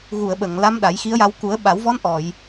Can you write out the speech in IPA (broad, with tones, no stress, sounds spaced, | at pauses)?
ɣ u˨˩˨ ə̯ ɓ ə˨˩˨ ŋ l a˧˥ m ɗ a˨˩˦ j x i˧˥ ə̯ j a˧ w k u˨˩˦ ə̯ ɓ a˨˩˦ w v ɔ˧˥ n ʔ ɔ˨˩˨ j